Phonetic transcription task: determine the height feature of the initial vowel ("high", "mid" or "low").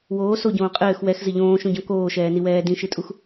mid